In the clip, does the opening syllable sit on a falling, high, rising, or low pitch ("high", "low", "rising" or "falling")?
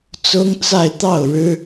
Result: high